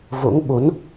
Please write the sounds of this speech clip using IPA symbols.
v o̰˧˥ ŋ ɓ o˨˦ n

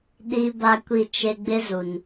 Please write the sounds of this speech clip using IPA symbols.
ɗ i˦ b a˦ kʷ i˦˨ t͡ʃ e˦ ɡ͡b ɪ˦ z u˨ n

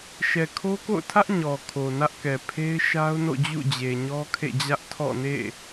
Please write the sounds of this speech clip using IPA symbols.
ʃ ɛ˨ kʰ o˦ k o̰˦˨ ʊ̯ tʰ ä˦ ʔ ɲ ɔ˨ kʰ o˨ n ä˦ ʔ k ɛ˨ pʰ e˦ ɪ̯ ʃ a˦ ʊ̯ n o̰˦˨ d͡ʑ ṵ˦˨ d͡ʑ e˨ ɲ ɔ˦ kʰ ḛ˦˨ d͡ʑ ä˦ ʔ tʰ ɔ̰˦˨ n ḛ˦˨

